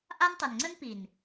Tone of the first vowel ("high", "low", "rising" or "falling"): high